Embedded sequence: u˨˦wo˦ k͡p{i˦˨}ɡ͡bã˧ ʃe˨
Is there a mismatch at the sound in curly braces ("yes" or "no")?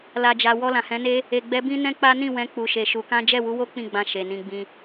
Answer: yes